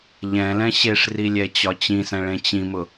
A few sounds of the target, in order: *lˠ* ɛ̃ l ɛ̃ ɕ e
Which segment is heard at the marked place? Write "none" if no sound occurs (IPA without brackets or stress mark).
ʎ